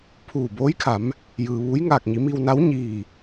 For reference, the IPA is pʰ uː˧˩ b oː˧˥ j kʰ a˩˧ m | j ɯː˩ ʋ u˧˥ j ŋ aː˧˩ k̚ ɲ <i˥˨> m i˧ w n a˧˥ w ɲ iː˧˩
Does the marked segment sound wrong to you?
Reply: yes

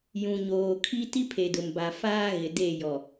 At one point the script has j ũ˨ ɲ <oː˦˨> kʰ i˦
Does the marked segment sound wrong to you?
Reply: yes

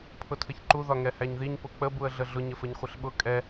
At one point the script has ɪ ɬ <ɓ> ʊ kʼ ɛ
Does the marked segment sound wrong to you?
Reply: no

